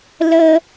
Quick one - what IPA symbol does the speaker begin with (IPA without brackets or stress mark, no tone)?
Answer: l